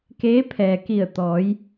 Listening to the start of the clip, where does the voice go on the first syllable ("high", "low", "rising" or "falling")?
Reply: rising